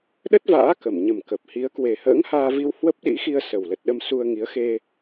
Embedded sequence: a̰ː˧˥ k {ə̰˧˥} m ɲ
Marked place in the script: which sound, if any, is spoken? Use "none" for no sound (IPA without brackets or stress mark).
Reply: ə˧˩